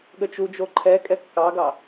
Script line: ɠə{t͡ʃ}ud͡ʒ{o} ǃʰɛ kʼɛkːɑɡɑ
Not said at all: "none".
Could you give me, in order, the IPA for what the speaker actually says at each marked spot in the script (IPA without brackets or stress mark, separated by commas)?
t͡ʃ, o